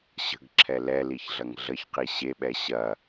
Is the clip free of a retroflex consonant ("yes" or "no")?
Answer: yes